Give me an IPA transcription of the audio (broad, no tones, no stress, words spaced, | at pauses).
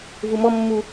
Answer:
vumɔmːu